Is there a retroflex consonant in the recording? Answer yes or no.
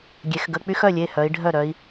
yes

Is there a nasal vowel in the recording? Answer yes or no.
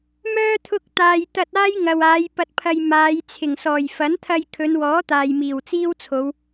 no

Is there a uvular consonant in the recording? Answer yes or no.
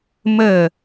no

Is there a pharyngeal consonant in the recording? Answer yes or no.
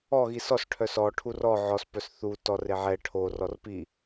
yes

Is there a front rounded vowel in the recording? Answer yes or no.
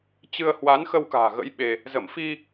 no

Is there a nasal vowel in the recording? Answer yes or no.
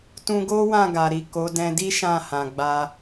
yes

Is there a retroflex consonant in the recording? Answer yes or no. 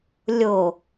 no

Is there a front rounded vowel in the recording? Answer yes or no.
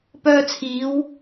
yes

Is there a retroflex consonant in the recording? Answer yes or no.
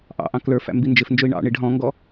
yes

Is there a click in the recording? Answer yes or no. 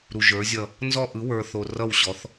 no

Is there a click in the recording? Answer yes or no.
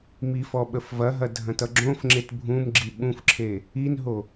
yes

